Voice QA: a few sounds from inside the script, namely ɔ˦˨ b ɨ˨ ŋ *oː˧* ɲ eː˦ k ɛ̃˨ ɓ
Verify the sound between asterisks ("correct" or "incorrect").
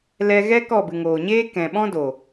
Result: incorrect